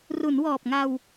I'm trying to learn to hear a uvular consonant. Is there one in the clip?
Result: no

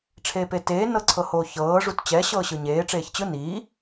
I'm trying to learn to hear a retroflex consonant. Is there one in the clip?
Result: yes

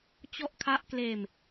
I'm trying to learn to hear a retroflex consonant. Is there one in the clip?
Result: no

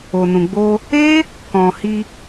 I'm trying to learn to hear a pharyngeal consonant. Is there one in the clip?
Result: no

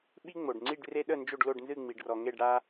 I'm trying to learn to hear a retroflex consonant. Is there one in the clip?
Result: yes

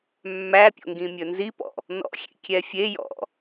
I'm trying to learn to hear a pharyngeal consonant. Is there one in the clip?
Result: no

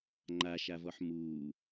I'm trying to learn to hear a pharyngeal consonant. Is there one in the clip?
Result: yes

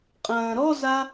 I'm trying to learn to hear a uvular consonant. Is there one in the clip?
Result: yes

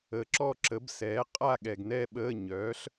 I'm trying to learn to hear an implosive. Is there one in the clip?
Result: yes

